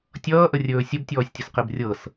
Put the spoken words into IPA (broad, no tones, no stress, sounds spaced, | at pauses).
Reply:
tʲ ʌː ʔ ə rʲ ɵː sʲ ə b tʲ ɔː sʲ tʲ ə s q e b rʲ ɤ s